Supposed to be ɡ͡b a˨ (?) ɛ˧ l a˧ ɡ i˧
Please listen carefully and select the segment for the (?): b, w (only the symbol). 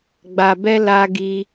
b